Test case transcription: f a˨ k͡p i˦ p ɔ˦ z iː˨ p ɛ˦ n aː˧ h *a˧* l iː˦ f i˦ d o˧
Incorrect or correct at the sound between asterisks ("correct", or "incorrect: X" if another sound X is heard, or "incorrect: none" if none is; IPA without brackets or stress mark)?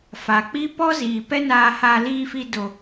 correct